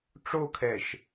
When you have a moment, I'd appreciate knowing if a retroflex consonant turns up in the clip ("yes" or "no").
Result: yes